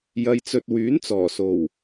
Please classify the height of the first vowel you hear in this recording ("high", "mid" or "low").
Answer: low